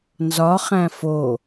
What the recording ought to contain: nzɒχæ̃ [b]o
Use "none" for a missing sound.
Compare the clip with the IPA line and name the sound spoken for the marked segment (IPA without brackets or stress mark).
f